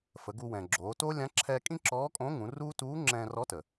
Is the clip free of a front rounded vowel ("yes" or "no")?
yes